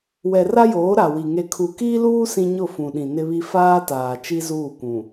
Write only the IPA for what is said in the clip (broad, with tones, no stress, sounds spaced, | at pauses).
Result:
w ɛ˨ r a˦ j oː˨˦ ɾ a˨ w i˨ ŋ e˨ kʰ u˨ k iː˦ l uː˦ s ĩ˦ ɲ ʊ˦˨ f ũ˨ ɗ ĩ˨ n ɪ˦ β i˦ f aː˦ t aː˨ t͡ʃ i˦ z uː˦˨ kʷ ũ˨